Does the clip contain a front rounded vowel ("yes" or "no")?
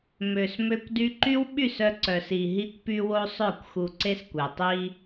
yes